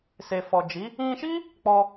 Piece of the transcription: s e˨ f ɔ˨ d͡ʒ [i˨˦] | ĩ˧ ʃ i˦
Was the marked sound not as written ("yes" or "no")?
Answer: no